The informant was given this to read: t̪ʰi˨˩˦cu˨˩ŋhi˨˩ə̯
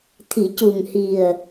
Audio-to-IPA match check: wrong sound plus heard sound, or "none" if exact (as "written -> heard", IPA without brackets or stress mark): none